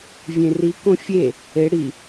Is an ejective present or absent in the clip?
absent